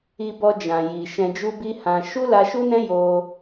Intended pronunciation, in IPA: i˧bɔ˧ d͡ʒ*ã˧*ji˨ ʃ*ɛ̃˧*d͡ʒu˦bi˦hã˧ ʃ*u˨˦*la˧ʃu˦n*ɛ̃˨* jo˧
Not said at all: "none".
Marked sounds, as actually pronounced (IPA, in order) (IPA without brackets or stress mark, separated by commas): ã˨, ɛ̃˧, u˦, ɛ̃˦